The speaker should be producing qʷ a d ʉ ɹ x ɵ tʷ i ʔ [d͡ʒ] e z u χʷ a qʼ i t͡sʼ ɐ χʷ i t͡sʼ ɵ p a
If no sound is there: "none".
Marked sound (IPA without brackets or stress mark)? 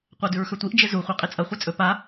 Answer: d͡ʒ